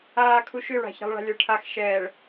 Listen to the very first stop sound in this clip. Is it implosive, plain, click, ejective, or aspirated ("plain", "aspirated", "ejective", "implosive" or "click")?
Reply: aspirated